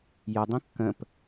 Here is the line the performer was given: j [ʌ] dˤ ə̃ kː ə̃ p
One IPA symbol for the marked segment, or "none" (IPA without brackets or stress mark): ʌ